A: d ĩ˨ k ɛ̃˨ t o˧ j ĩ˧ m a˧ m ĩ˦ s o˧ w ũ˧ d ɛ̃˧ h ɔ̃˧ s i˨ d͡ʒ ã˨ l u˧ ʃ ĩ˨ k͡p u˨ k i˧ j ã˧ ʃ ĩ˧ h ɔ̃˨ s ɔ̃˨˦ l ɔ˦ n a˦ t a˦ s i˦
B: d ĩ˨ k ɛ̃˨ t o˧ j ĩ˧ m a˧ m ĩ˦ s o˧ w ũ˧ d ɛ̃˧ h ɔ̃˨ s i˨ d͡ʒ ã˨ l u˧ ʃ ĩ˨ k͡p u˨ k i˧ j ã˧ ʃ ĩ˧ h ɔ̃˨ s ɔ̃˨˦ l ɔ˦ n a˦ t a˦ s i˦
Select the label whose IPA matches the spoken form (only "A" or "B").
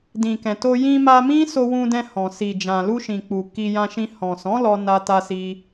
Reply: B